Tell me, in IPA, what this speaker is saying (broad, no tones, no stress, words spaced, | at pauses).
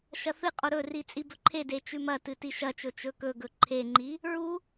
ʃɐθɨqʼo ɾɵri t͡sʼibɵǃʰede t͡ʃʉmɐtɨ tiʃɐt͡ʃɵ t͡ʃɵkɵɡɵ ǃʰeŋ͡ǃi | ɹu